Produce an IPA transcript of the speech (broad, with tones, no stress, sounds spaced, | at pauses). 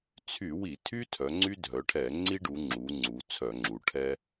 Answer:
t͡sʰ y˧˩˧ w i˧˩˧ tʰ y˦ tʰ œ˩˧ ŋ͡ǀ y˦ dʱ œ˩˧ ʈʰ ɛ˧˩˧ ŋ͡ǀ i˦ ɖ u˩˧ ŋ͡ǁ u˩˧ ŋ͡ǀ u˩˧ t͡sʰ œ˧˩˧ ŋ͡ǁ u˩˧ ʈʰ ɛ˦